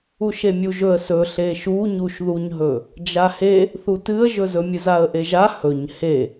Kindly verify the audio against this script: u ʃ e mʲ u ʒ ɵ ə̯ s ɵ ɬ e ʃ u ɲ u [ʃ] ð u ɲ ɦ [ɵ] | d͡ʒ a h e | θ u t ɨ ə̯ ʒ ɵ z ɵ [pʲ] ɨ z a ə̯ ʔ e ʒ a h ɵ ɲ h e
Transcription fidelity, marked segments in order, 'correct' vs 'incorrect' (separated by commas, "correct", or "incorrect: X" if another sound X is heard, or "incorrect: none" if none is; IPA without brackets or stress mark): correct, correct, incorrect: mʲ